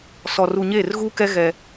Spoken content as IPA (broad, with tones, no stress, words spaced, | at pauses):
sɔ˨ru˨ ɲeː˦˨rɣuː˦kɛ˦ ɣɛ˦